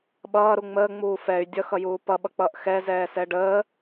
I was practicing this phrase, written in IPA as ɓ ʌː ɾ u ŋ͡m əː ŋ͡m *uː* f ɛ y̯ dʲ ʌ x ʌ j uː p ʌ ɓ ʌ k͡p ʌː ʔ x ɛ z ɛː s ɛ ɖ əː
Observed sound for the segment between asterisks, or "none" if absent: uː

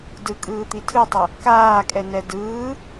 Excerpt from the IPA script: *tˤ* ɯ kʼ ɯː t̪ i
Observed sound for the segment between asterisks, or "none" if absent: d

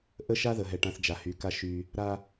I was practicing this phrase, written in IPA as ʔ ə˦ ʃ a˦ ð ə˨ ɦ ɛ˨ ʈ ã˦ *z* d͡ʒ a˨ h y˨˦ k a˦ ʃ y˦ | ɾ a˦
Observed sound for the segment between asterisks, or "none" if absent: θ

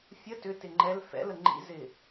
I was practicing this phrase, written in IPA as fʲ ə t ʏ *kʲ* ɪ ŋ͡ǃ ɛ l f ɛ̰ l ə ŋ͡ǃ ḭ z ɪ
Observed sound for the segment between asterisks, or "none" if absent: t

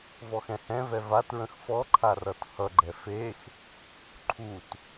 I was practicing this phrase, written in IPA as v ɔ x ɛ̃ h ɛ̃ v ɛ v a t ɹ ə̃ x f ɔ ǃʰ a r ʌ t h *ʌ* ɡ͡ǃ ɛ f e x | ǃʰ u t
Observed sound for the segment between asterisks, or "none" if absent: ʌ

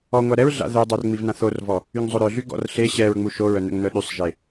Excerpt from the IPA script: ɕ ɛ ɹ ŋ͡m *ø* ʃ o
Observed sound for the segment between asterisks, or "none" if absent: u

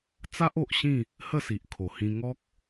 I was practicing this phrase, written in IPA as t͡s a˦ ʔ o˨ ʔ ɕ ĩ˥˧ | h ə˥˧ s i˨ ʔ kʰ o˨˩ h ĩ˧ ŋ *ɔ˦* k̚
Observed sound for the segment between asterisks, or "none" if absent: ɔ˦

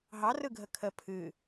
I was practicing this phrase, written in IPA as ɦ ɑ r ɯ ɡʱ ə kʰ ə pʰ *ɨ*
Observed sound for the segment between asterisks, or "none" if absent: ɨ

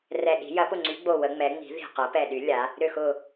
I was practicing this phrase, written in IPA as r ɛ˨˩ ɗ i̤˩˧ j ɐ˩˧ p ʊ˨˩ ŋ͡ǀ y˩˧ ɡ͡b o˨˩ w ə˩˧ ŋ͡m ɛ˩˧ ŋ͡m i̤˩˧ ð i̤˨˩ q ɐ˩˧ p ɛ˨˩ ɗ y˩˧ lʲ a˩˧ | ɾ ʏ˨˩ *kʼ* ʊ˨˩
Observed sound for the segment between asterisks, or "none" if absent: x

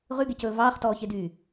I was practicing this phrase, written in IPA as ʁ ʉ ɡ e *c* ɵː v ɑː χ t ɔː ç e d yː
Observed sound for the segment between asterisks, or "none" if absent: c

